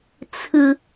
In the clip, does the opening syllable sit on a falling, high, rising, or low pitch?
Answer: high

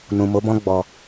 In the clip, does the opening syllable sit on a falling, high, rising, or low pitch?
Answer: low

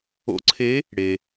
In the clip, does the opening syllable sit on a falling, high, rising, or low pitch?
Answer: rising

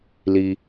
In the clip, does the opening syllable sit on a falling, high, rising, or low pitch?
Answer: high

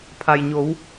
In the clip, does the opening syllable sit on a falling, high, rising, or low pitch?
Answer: low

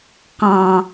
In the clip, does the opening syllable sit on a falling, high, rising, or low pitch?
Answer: low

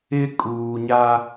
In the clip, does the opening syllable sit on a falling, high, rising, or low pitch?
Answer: high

